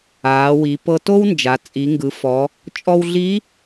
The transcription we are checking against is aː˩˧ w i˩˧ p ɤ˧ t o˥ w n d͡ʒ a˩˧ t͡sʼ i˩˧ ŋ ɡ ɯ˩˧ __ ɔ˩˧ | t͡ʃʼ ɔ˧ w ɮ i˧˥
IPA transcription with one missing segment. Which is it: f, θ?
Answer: f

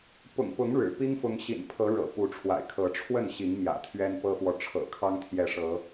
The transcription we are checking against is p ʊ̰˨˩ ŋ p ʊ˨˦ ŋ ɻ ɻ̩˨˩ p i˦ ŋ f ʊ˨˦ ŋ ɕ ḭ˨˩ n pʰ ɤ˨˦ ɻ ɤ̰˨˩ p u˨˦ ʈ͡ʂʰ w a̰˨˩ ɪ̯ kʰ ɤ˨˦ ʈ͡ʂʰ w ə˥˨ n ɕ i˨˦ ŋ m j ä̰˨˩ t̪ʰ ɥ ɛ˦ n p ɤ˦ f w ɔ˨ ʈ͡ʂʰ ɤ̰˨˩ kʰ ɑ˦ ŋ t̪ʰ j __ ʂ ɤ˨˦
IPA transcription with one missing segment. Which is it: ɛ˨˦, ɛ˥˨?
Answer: ɛ˨˦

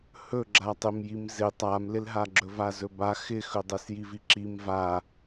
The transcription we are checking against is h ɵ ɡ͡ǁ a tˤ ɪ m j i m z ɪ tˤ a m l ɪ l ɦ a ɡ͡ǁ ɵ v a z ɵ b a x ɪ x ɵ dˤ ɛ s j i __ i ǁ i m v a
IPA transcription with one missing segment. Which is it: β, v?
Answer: v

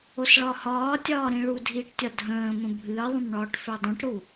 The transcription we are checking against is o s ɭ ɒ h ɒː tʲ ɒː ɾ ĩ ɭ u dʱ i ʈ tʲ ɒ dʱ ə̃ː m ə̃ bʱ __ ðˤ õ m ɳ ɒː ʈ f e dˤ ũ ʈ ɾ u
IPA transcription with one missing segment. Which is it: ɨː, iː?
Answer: ɨː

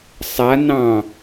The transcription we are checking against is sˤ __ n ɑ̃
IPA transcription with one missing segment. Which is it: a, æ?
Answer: a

